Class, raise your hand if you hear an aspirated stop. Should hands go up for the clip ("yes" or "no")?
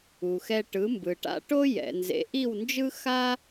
no